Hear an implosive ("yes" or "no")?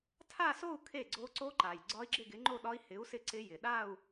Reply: yes